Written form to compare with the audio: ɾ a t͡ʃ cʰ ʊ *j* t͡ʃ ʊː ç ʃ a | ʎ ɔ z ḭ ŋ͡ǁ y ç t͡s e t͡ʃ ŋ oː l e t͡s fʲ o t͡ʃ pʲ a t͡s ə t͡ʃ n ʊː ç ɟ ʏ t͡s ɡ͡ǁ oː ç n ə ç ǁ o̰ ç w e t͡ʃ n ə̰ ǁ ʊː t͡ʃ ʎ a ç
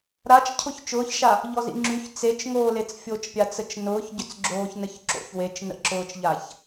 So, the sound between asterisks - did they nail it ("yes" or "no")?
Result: no